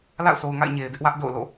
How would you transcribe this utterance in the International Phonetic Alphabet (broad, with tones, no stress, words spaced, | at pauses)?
la̰˦˨ʊ̯so˨ʊ̯ŋa̰˦˨ɪ̯ ɲe˨ɪ̯dɪ˦ʔwä˦ʔ do̰˦˨ʊ̯ lo̰˦˨